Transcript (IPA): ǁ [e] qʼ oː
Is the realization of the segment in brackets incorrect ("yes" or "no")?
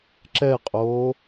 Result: yes